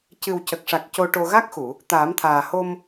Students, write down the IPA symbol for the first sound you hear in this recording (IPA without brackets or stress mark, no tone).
c